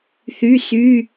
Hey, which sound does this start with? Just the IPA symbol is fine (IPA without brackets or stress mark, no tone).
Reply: θ